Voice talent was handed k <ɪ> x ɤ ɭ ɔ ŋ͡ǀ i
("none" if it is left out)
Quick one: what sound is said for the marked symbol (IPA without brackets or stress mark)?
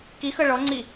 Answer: i